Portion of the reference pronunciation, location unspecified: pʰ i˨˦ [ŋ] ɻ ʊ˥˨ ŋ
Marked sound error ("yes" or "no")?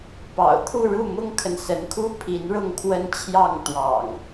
yes